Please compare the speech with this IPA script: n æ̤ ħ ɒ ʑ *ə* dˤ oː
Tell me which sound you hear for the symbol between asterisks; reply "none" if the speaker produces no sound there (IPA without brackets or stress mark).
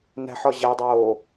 æ